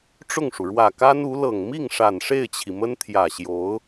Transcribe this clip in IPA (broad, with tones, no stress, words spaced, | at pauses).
ʈ͡ʂʊ˥˩ŋʂu˩ ɻwä˨˩ka˥nu˧˥lɤ˨˩ŋ mi˥˩ŋʂa˨˩n ʂe˥˩ɪ̯t͡ɕʰi˩mə˥n t̪ʰjä˨˩ɕjo˧˥ʊ̯